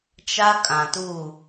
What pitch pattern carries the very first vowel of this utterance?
high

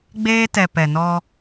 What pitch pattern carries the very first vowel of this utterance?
high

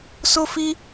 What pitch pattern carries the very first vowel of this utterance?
high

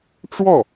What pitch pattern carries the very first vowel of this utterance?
falling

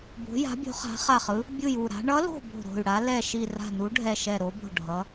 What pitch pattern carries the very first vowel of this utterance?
rising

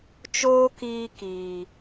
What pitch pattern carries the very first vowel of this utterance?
high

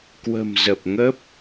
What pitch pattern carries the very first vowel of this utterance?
low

